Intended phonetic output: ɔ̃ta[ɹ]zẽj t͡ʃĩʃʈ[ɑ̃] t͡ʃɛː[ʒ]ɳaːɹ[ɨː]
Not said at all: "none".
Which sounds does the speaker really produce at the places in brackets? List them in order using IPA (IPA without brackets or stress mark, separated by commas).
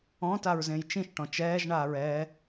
ɹ, ɔ̃, ʒ, ɛː